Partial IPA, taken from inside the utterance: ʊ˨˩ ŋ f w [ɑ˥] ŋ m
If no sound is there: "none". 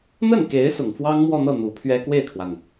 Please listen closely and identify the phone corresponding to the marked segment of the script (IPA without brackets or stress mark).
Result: ɑ˥